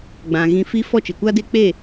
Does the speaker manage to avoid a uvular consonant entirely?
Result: yes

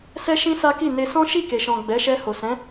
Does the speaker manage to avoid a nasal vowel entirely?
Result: no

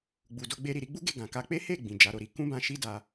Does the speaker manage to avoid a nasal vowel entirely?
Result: no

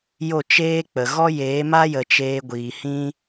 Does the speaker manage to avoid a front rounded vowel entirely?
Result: yes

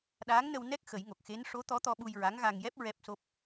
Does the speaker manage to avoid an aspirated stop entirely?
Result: yes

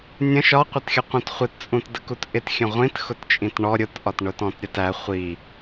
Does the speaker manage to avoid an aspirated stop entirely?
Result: yes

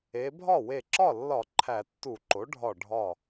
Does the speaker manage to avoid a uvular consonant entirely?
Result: yes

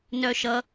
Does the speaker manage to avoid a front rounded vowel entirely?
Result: no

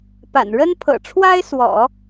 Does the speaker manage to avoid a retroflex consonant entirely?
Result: no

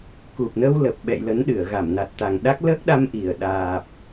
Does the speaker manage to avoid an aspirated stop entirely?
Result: yes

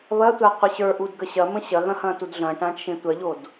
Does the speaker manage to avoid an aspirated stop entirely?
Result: yes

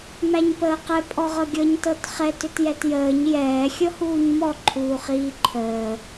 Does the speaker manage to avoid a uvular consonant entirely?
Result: no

